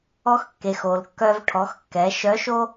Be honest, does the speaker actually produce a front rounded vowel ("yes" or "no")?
yes